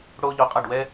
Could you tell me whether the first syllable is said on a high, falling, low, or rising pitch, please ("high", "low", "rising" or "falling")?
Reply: high